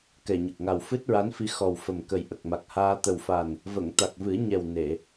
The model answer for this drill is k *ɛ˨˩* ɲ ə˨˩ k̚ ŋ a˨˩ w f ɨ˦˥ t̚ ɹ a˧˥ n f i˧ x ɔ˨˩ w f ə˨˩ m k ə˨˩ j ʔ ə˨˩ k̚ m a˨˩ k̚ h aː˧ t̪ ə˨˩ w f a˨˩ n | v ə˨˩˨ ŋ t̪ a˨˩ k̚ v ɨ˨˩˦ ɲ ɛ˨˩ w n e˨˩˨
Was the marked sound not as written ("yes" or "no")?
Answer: no